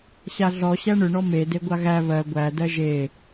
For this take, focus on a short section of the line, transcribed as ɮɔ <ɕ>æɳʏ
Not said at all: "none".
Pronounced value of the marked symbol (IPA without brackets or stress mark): ɕ